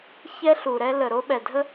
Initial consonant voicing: voiceless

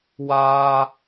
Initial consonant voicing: voiced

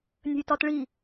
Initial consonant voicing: voiced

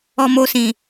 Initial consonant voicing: voiced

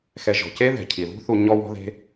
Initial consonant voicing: voiceless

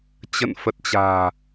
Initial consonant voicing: voiceless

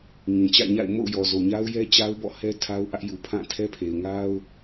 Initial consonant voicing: voiced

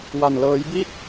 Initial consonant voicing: voiced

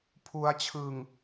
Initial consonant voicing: voiceless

